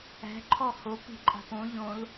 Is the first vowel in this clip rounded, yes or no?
no